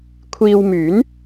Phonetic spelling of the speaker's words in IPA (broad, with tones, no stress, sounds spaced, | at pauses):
kʷʰ iː˧ w m yː˨˥ n